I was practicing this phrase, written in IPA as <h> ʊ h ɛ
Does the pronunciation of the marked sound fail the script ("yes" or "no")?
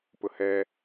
yes